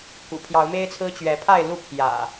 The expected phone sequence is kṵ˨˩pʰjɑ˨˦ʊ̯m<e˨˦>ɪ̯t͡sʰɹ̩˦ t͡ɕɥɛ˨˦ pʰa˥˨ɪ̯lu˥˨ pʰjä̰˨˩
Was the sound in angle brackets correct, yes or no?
no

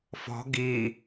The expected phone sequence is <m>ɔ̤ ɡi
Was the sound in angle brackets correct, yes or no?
no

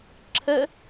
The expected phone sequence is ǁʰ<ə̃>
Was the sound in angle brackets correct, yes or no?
no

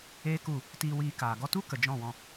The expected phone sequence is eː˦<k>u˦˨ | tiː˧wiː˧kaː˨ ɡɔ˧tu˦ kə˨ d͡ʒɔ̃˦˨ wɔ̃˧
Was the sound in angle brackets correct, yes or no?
yes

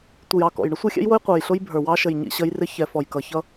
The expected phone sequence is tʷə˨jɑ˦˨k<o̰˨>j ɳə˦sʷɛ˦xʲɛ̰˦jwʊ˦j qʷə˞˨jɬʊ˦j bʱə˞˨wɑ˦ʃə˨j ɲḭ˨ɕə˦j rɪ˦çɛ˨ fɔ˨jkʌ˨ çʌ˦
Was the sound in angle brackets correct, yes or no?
no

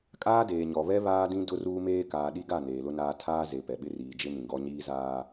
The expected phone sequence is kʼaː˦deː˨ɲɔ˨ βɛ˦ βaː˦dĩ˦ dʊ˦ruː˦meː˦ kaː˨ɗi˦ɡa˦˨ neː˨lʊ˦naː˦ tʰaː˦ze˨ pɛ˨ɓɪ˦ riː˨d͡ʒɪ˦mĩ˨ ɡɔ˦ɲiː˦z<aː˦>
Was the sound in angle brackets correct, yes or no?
yes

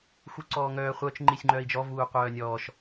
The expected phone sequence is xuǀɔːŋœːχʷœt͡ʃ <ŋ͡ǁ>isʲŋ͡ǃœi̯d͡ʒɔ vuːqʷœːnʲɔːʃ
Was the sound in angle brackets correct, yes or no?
no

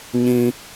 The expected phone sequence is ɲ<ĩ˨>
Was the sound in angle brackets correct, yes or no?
no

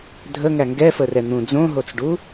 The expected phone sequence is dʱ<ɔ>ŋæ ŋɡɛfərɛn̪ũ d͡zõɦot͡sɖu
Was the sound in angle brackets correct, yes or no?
no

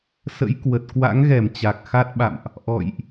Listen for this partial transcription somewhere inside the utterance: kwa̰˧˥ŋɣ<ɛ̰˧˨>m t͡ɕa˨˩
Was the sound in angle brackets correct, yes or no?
no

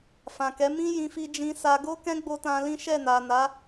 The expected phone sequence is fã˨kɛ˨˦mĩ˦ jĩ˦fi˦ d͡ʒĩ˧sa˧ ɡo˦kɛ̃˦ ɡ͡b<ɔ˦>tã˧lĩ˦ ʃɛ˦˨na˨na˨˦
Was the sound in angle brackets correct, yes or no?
no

